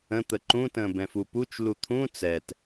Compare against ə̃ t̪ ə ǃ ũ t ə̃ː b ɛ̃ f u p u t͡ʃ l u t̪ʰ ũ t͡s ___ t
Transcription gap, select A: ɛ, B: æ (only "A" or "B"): A